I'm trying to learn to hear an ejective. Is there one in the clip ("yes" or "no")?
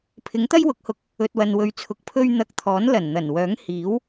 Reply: no